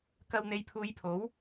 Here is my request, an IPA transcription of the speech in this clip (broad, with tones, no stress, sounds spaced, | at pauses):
k ɐ˧ w n̪ e˨˧ j pʰ uː˨˧ j pʰ o˨˥ w